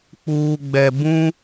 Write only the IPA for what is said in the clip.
k͡p uː˨ ɡ͡b ɛ˨ b ũ˦

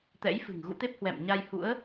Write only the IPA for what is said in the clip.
t̪ ɛ̰˧˥ j f ɨ̤˨˩ ŋ ɣ ṵ˧˥ t̪ e˦˥ p̚ h w ɛ̰˧˨ m ɲ a˧ j h ṵ˧˥ ə̯

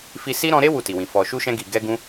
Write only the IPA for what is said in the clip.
f i˧ s i˦ ɾ ɔ̃˧ ɾ e˦ w u˦˨ t i˨ w ĩ˨ f ɔ˨ ʃ u˧ ʃ ɛ̃˧ ɡ i˨ ɡ ɛ˧ ɡ ũ˧

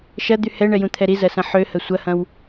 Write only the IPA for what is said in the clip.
ʃ ɐ d̪ y h ɛ ɳ ɛ j ũ t̪ʰ ɛ ɾ i z ɐ s ɐ̃ ħ ø h ə sʷ ɐ h ɐ̃ w

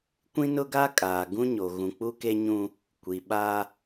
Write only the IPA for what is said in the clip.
kʷ ĩ˦ n ʊ˦ ɡ a˦ kʼ aː˨ ɡ ũ˦ ɲ o˨ ɣ ũ˨ k͡p u˦ k e˦ ɲ ũ˦ | kʷ i˨ ɓ a˦

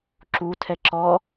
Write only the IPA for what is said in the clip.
ǁ u tʰ ɛ ǁ ɔ

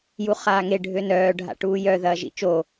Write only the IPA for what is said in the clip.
j u χ aː ŋ e ɖʱ ø n œː ɖʱ a̰ ʈ uː j œ ð ɐː ʒ ḭ t͡ʃ o

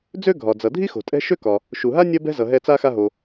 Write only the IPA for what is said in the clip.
d͡z ø˥ ɡʱ ɒ˨ d͡z ʌ˨ dʱ i˥ x o̤˨ tʼ ɛ̤˦ ʃ ø˥ k ɒ˨ | ʃ u˨ ɦ a˥ nʲ ɐ˥ b ɛ̤˥ z ʌ˨ ɦ ɛ˦ t͡s a˥ x a˦ ɦ o˨

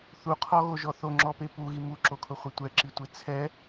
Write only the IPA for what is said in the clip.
θ u qʰ ɔ ɣ o ʒ ɔ θ o ŋ͡ǁ ɔ p e p u ɣ i m u ǁ o kʰ ʊ χʷ e tʷ ɛ ǁ i tʷ e t͡sʰ ɛ

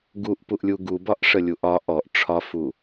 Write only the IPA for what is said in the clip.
ɡ u ʔ p u ʔ lʲ u ɡ u b ɒ ʔ ʂ ə lʲ u ʔ ɒ ʔ ɔ ʔ ʈ͡ʂʰ ɒ f u

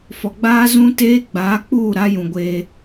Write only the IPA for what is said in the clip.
f ɔ˨ ɡ͡b aː˦ z ũ˦ t eː˦ ɡ͡b aː˨˦ k͡p uː˦˨ ɾ a˦ j ũ˨ ɡʷ eː˦

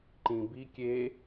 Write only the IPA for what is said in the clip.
ǃ ĩ b i kʲ e

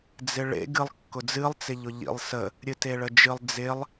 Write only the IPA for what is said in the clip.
d͡z ɪ ɭ ḛ ɡ ɨ lˠ kː ʊ d͡z ɨ lˠ t͡s ɪ ʎ ʊ ʎ ḭ lˠ s ə | ɾʲ ɨ t e ɭ ə d͡ʒ ɨ lˠ d͡z ɪ lˠ

